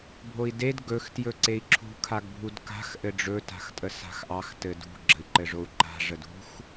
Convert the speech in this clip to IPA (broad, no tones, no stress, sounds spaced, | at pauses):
bʱ o i̯ d e d ɡ ɵ x t j ɵ ǀ e i̯ ǁʰ ṳ kʰ a ɡ bʱ u d k a̤ x ʔ ɘ ɖ͡ʐ ɵ t a̤ x tʼ ə s a̤ x ʔ ɑ x t ɘ d ṳ ɡ͡ǁ ə̤ i̯ ǃ ɘ ʐ o u̯ ǃ a̤ ʐ ə d ṳ x